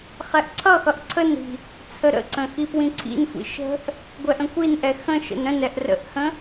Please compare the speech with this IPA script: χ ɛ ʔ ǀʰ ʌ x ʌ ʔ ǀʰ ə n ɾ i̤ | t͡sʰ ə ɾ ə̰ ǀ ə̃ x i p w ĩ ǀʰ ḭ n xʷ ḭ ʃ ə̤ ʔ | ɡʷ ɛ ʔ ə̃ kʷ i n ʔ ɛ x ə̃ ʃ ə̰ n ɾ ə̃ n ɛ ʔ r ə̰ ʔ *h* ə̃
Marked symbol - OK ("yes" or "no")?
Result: yes